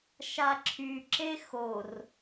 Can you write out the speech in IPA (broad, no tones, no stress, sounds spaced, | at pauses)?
ʃ a ǁʰ y ǁ e x o r